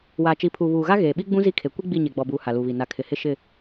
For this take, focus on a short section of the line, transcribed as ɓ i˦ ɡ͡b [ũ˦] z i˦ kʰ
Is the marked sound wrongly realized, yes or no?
no